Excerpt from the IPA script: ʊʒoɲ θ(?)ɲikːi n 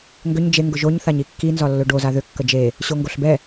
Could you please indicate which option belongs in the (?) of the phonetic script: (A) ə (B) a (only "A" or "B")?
B